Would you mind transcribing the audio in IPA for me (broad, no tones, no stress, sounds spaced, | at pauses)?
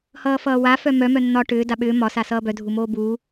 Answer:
h ʌː f ʌː w a f œ m œ m œ nː ɒ ʈ ʏː d a ɓ ʏː m ɒ s a s ʌː b œ dʱ u m oː b uː